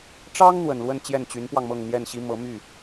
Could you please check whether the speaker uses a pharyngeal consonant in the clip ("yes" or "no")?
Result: no